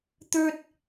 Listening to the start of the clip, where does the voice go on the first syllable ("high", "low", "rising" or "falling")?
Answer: high